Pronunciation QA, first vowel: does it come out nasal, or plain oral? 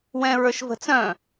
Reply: nasal